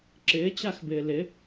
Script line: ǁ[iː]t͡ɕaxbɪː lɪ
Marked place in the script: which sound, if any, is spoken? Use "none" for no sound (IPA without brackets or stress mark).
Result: ɪː